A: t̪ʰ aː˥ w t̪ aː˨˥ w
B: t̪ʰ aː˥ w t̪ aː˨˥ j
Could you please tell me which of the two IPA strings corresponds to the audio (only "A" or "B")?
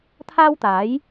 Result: B